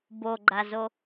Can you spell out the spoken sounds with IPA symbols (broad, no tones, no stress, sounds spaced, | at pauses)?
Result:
b o ɡ͡ǃ a z o